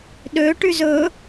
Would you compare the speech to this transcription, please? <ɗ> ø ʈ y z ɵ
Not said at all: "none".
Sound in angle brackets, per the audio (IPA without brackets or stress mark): ɗ